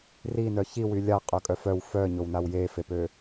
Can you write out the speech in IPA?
r i n œ ç i w y lʲ a qʼ œ kʼ œ f œ w f œ ɲ o w n a w j e f e p ø

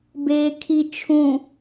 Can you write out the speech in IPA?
b eː kʰ i t͡ʃʰ ũ

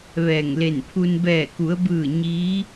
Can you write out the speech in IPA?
ʋ ɛː˧˩ ŋ l e˧˩ n pʰ u˧ n b ɛː˧˩ k u˩˧ ə̯ b ɯː˧˩ ɲ iː˧˥

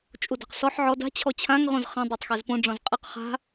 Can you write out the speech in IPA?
t͡ʃʼ u d ɑ̤ q s ɔ ħ ʕ ɔ d a̤ t͡ɕʰ ɔ t͡ɕʰ ã ŋ ʁ õ z χ ã dˤ ɑ tˤ x e z p õ ɖ͡ʐ ɔ̃ z qʼ e q χ a̤

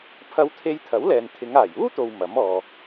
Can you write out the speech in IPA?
pʰ ɐ˧ w t̪ʰ e˧ j t̪ʰ ɐ˨˥ w l ɛː˨ n t̪ʰ ɪ˨˧ ŋ aː˨˩ j uː˥ t̪ o˨ w m ɐ˨˥ m ɔː˨

